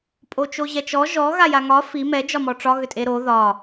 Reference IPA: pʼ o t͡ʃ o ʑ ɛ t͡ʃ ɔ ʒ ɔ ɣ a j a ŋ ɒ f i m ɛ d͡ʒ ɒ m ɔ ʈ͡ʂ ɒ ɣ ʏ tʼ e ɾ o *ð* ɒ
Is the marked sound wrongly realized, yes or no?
no